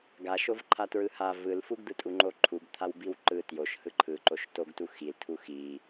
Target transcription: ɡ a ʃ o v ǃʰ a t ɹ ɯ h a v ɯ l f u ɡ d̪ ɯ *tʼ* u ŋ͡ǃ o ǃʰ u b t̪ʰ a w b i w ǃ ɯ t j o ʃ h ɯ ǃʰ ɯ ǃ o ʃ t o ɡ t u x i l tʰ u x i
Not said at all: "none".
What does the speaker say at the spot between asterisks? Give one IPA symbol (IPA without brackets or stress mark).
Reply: tʼ